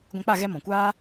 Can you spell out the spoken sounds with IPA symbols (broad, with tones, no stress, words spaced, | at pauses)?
ɡʷɛ̃˧k͡pa˦˨ ɣɛ˦ mɔ̃˨kʷaː˦